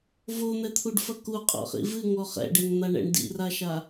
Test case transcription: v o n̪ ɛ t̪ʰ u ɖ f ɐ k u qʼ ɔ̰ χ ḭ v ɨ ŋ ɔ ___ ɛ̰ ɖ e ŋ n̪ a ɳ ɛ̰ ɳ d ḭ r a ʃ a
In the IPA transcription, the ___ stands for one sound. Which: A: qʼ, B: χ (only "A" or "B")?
B